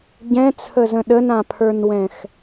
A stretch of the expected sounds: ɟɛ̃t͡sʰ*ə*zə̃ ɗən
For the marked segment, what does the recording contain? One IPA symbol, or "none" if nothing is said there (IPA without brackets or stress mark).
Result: ə